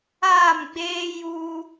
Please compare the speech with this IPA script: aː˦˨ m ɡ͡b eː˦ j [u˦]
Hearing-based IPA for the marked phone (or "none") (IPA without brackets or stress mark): uː˦